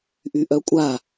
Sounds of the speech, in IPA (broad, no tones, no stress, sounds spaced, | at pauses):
ʔ y ʔ œ kʷʼ a